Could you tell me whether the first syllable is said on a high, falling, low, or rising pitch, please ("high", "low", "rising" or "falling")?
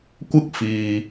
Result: high